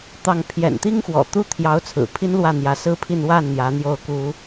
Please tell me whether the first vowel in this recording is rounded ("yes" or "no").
no